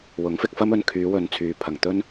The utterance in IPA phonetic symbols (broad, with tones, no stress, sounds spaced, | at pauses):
w ʊ˨˥ ŋ f ɪ˧ k̚ f ɐ˥ m ɵ˧ n kʰ yː˨˧ w ɵ˨ n t͡sʰ yː˨ pʰ ɐ˨˩ ŋ t̪ ɵ˥ n